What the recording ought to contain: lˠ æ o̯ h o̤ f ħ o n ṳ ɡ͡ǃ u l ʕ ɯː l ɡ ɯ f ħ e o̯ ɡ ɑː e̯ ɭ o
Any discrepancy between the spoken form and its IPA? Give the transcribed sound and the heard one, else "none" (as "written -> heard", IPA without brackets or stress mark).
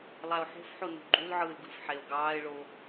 h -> ħ